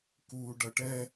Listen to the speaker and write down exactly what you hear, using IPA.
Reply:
k uː ɖ ʌ ʈ ɛ

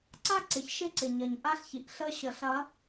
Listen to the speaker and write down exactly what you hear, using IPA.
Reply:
ǀ a˦ ǀ ɪ˨ ç ʃ ɪ˦ ǀ ɪ˨ ɲ ɐ˨ ɲ ʔ a˦ ɬ ç i˨ ʔ ɬ ə˦ ɕ ə˨˦ ɬ ɐ˨˦

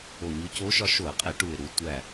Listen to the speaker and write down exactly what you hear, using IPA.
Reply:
o˧˩ ɲ u˧˥ c o˧˥ ʃ ɒ˧ ʃ o˧˩˧ ə̯ qʼ e˧˩˧ ʈ u˧˩ ɪ̯ ɾ u˧ tʷ æ˧˩

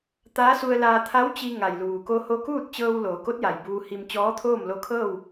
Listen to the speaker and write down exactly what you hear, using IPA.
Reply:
t̪ aː˧˥ s u˧ ə̯ l aː˧ t̪ʰ a˧˥ w t͡ɕ i˧ ŋ a˩ j l uː˩ k o˧ h o˧ k uː˥˨ t̚ t͡ɕ ɤː˧ w l oː˩˧ k o˧˥ t̚ j a˩ j b uː˧ h i˧ m t͡ɕ ɔː˧˥ t̪ʰ oː˥˨ m l o˧ kʰ ɤː˥˨ w

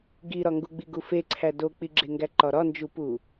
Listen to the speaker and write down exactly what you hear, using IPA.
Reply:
ɡ i ɾ ɒ ŋ ɡ u ɡ͡b i ɡ u f e ǀʰ æ d o k͡p i ɡ͡ǁ e ŋ ɡ æ ǃ ɒ ɾ ɒ n d͡ʒ u p u

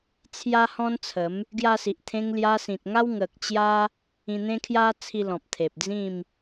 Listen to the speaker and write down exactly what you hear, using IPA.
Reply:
t͡sʰ j a˦ h ɔ̃˦ n t͡sʰ ə˨˦ m | ɡ j a˧ s i˨ ʔ t̪ʰ ẽ˧ ŋ l j a˧ s ĩ˨ t̚ ŋ a˦ w ŋ ə˨ k̚ t͡ɕ j a˦ | ĩ˧ n̪ ẽ˦ kʰ j a˦ t͡sʰ i˧ l ɔ̃˨ p̚ t̪ʰ e˨ p̚ d͡z ĩ˥˧ m

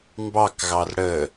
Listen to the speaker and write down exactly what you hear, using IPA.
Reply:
m b ɑ k ɣ ɑ r ɽ ə

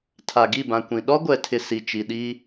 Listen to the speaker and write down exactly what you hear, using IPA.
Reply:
tʰ a˨ ɡ i˦˨ b ã˨ kʷ ĩ˨ ɗ ɔ˦ ɡʷ ɛ˨ tʰ ɪ˨ s i˨ t͡ʃ i˨ ɗ iː˦

